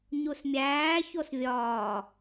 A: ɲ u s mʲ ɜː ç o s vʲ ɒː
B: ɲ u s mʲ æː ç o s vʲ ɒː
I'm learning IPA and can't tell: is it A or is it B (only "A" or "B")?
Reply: B